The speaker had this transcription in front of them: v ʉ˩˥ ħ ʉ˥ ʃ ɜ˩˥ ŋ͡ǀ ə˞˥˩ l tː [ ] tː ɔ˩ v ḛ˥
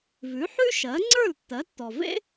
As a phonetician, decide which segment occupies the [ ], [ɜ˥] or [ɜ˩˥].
ɜ˩˥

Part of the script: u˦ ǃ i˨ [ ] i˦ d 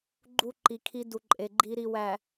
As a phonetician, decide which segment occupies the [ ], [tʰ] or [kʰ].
kʰ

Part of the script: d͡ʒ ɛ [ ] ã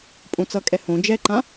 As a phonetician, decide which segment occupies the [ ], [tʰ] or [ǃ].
ǃ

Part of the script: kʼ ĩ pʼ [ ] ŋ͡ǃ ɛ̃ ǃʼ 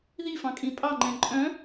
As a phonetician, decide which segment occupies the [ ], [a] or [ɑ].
ɑ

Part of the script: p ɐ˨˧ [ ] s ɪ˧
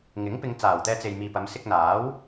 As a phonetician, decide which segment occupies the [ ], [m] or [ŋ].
m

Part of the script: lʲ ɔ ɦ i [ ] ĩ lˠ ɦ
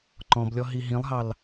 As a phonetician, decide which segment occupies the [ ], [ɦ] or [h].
ɦ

